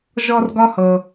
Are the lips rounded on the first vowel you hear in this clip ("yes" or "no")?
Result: yes